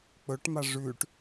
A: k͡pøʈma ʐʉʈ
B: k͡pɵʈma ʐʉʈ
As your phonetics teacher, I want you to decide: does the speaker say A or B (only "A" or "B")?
B